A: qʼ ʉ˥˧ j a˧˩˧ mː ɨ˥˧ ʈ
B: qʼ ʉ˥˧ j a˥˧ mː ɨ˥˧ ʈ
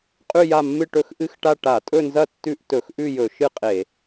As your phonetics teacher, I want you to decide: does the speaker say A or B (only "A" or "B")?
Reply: B